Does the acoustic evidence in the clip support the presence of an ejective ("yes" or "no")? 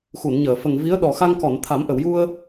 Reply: no